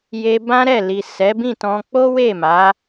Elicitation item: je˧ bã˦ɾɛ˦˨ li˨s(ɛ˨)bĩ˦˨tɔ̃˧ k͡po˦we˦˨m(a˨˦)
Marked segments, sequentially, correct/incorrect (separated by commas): incorrect, correct